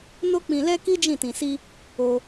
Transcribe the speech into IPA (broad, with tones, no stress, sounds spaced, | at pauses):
n o˦ k͡p ĩ˧ l ɛ˦ k i˦ d͡ʒ ĩ˦˨ t ĩ˧ s i˦ | o˧